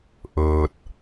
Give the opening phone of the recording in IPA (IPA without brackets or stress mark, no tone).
ʔ